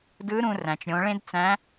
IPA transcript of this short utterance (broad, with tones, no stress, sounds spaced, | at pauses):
d ɯ˧˥ ɾ ũ˧ r æ̃˩ t͡ʃ ɾʲ õ˩˧ ɭ ẽ˥ d t͡s æ̃˧˥